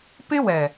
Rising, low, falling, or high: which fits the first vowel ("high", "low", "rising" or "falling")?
high